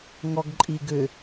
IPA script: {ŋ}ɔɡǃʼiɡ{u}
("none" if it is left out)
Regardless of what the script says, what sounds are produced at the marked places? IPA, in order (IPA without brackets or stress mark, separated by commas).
ŋ, ʏ